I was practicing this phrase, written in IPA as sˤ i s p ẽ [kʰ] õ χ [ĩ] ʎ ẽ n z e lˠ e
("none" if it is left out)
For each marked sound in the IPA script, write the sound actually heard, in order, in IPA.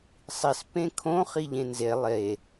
kʰ, i

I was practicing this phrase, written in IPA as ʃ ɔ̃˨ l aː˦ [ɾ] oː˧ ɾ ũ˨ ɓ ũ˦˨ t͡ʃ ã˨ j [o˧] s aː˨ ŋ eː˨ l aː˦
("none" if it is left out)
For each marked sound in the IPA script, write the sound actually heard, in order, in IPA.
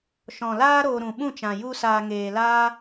ɾ, u˧

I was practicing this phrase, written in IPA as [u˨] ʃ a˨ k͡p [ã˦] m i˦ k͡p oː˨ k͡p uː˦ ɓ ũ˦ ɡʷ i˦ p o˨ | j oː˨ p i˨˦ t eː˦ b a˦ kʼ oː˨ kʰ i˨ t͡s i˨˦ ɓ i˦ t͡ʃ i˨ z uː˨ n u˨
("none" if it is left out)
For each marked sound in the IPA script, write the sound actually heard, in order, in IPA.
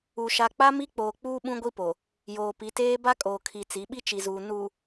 u˨, a˦

